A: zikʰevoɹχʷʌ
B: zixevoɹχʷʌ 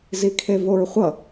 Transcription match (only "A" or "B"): A